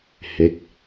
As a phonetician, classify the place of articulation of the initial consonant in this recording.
glottal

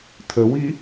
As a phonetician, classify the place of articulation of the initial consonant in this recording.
alveolar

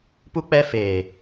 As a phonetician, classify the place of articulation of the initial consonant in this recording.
labial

